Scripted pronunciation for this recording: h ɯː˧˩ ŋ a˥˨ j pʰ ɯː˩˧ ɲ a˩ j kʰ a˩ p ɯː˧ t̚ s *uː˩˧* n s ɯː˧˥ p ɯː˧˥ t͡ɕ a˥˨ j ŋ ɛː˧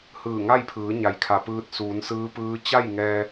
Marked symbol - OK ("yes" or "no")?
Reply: yes